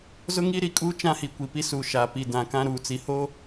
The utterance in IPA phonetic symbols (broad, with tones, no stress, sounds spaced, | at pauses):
z ʊ˦ ŋ i˦ ɾ i˨ kʼ uː˦ t͡ʃ ã˦ h i˨ kʷ i˨ p i˦ s u˨ ʃ a˨ p i˨ d ã˨ k ã˦ ɾ uː˨ t͡s i˨ h o˦